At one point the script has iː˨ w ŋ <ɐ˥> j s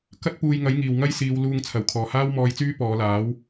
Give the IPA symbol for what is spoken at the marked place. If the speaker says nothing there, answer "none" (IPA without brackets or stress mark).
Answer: ɐ˥